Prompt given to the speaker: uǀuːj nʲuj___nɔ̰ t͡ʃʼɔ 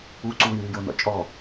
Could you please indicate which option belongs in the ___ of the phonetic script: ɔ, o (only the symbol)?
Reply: o